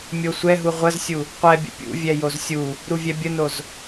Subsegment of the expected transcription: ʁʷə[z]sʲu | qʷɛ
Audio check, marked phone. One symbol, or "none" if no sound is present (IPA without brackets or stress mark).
z